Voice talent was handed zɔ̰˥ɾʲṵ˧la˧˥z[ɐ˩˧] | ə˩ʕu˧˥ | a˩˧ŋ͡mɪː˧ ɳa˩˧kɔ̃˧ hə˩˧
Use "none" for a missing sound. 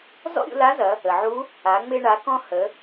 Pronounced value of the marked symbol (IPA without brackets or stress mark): ɐ˩˧